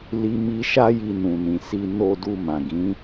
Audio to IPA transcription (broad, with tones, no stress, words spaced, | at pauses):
li˧mi˧ ʃa˦ji˧nũ˨nĩ˨ si˨no˨du˨ mã˨ɡĩ˨˦